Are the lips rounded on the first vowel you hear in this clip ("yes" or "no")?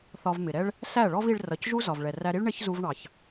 yes